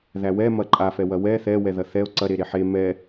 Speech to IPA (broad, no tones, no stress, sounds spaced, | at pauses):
ð æ w ɛ m ɐ ǃʼ a f ɛ w ɐ w ɛ θ ɛ w ɛ ð ɐ θ ɛ o̯ ǀ ɐ ɾ e ɾ e ħ e m ɛ